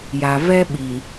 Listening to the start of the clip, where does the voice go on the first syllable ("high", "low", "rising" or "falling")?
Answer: low